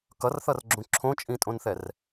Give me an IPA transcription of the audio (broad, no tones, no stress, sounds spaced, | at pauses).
k ʌ r θ ʌ r ɡ͡ǁ ũ ǁʰ õ t͡ʃʼ ĩ tʼ õ n θ ɛ r